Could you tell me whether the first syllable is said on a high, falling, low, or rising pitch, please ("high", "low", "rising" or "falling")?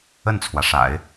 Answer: falling